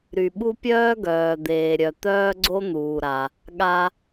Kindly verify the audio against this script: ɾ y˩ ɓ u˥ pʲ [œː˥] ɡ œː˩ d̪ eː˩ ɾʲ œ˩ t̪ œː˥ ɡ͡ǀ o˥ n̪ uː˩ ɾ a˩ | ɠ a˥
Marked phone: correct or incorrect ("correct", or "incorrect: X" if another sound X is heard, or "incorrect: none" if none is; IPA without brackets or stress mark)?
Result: correct